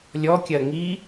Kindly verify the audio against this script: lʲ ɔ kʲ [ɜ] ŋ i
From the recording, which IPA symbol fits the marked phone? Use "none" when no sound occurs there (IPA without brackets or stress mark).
ɜ